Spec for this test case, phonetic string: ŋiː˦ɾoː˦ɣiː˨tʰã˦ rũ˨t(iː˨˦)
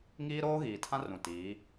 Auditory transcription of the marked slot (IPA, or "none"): iː˨˦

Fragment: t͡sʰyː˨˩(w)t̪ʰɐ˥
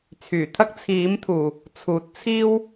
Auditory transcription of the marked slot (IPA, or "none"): none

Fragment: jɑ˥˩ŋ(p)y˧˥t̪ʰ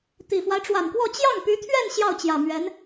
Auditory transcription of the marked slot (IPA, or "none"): p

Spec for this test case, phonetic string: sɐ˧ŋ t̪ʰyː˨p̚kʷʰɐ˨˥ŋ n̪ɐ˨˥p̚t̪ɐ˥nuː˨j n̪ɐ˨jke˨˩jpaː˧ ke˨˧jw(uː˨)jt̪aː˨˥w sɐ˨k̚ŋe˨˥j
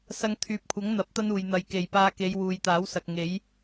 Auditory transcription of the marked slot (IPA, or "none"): uː˨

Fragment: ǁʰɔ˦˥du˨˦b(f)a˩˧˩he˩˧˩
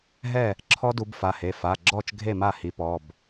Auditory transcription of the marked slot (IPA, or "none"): f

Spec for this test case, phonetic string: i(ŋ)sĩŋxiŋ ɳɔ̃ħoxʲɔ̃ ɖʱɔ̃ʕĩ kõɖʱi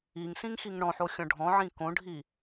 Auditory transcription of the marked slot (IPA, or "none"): ŋ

